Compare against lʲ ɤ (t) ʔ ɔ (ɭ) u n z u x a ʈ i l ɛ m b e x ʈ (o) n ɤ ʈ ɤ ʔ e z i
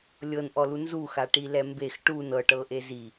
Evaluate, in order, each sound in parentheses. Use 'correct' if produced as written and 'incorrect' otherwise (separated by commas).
incorrect, incorrect, incorrect